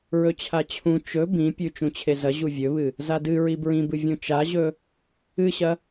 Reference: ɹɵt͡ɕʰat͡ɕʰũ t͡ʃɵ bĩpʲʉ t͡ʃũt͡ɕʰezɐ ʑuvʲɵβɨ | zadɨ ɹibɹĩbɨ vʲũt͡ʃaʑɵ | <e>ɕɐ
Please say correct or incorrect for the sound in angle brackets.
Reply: incorrect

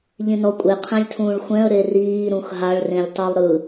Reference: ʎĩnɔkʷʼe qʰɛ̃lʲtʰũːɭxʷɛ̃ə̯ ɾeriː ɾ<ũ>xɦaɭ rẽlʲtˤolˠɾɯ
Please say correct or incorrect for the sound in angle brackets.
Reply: correct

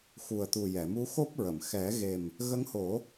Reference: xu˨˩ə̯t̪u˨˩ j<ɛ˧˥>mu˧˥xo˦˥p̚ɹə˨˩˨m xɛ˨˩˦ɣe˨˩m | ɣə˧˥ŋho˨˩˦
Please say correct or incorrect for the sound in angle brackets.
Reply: incorrect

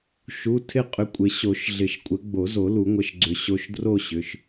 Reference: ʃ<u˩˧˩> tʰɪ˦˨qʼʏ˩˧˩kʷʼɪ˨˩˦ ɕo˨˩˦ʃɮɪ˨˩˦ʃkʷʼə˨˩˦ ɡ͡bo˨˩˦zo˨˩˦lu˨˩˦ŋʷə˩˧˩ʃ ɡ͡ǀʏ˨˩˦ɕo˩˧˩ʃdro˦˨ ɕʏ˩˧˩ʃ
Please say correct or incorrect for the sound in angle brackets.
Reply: correct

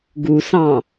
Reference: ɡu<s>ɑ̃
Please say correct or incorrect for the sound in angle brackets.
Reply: correct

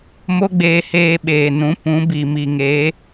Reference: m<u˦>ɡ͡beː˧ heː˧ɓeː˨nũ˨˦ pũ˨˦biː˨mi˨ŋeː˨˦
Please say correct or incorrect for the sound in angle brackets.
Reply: incorrect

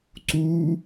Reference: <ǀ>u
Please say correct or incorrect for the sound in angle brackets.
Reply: correct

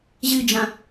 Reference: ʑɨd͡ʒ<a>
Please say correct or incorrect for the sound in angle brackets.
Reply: incorrect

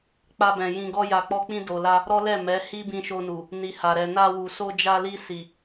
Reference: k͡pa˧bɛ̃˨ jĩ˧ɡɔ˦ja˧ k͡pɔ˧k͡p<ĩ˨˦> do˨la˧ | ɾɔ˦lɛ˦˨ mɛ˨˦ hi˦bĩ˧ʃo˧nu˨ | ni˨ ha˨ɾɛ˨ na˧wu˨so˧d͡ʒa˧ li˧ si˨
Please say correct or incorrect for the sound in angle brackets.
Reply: incorrect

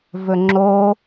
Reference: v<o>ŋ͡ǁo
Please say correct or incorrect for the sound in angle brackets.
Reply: incorrect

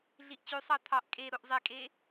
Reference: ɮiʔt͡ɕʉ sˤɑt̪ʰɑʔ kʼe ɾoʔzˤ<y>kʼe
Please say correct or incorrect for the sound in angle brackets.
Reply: incorrect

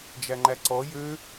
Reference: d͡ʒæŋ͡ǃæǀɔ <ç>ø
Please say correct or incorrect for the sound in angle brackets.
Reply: incorrect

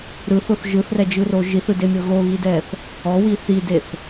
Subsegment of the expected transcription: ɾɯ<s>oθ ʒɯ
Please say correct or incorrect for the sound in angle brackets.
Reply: incorrect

